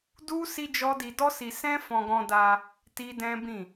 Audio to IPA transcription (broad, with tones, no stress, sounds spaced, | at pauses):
d u˦ s i˦ d͡ʒ ɔ˦ d i˧ d ɔ˦ s i˧ s ɛ̃˦ f ɔ̃˧ ɡ ɔ̃˧ d a˧ | t i˦ d ɛ̃˦ b ĩ˦˨